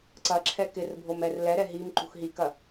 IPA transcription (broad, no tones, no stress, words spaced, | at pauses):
ǀɐǁʰɛ kɪrbʱomɛr lɛɾɛ ɦimǃṳx ɦikɐ